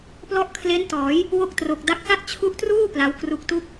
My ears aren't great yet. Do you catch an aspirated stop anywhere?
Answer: yes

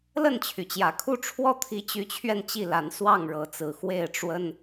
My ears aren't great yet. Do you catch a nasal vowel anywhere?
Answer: no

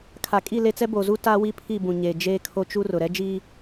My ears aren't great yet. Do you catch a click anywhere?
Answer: no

